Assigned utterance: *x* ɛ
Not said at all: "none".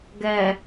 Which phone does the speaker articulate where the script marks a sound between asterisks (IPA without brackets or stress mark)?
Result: ɡ